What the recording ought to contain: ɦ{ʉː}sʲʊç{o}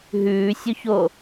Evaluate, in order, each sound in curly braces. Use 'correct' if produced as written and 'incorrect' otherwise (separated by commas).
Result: correct, correct